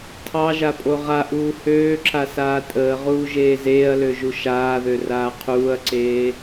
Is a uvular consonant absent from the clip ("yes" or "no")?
no